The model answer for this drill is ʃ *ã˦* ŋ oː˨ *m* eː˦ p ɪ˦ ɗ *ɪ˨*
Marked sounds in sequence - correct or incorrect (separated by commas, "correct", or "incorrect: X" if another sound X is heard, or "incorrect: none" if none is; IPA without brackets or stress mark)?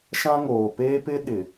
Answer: correct, incorrect: p, correct